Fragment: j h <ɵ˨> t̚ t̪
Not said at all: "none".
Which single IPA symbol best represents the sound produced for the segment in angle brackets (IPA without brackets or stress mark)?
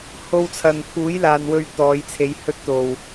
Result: ɵ˥